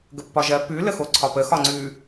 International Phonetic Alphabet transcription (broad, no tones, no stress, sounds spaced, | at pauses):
ɡ ə pː ɒ ʒ ɜ p ʉ l ə x o ǀʰ ɒ p ə x ɒ ŋ͡ǀ ʉ